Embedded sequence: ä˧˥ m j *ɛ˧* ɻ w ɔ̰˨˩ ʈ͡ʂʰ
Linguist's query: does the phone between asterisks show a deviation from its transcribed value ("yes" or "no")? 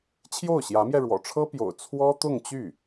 no